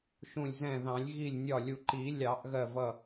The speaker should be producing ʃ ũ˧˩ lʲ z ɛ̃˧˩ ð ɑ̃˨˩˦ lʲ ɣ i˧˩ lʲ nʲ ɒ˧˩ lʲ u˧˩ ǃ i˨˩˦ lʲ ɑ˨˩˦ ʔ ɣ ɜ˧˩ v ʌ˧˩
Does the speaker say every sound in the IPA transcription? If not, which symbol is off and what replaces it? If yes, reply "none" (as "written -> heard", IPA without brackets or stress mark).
none